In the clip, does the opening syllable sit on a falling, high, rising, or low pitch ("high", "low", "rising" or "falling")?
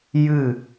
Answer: falling